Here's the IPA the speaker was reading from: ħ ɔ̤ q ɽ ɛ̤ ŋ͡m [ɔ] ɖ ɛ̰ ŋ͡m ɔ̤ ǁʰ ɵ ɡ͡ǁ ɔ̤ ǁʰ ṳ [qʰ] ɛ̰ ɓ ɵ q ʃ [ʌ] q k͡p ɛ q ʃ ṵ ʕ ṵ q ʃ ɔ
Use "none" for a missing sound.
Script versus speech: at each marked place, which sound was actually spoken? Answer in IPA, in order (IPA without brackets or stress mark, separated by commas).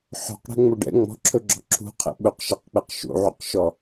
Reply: ɵ, qʰ, ʌ